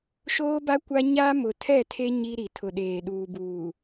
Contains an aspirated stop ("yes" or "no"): yes